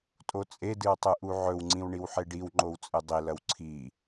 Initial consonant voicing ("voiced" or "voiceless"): voiceless